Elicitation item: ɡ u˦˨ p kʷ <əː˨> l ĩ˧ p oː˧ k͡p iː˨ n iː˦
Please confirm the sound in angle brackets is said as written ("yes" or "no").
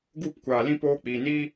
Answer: no